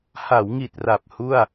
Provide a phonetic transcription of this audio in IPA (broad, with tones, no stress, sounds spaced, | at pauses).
h a˩˦ w ŋ i˨˩ t̚ r a˨˩ p̚ h u˥˩ a̯